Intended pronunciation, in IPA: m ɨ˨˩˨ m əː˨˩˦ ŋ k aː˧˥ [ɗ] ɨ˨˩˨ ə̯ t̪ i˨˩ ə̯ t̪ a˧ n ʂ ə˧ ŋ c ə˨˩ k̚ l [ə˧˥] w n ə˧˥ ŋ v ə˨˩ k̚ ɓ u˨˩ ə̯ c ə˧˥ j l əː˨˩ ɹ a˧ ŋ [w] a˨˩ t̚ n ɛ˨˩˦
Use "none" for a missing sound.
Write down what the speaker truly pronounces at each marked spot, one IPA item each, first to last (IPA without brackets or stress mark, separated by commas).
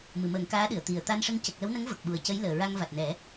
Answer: ɗ, ə˧˥, v